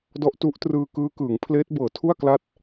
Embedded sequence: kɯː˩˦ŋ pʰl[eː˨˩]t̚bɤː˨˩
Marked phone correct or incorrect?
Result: incorrect